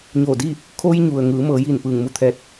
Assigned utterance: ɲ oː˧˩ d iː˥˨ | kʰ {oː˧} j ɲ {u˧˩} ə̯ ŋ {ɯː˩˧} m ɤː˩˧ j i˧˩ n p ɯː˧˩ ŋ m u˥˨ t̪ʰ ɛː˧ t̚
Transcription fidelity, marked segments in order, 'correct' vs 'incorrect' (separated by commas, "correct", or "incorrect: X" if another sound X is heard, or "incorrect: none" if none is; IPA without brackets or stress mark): incorrect: o˧, incorrect: u˩, correct